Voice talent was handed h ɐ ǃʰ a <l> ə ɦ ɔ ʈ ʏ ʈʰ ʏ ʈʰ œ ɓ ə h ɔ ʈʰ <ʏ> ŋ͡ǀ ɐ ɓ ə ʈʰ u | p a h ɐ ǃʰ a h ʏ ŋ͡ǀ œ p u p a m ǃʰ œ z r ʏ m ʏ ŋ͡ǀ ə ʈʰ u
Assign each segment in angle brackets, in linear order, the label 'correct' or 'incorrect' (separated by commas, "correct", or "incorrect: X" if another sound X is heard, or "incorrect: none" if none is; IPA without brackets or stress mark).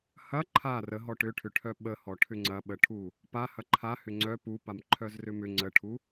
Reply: incorrect: r, correct